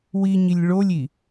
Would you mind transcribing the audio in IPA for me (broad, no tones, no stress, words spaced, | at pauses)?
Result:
wiɲilʲ ɭolʲi